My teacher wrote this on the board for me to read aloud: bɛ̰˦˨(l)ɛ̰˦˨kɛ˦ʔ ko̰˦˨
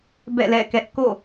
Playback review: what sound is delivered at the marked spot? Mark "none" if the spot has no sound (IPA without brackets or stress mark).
l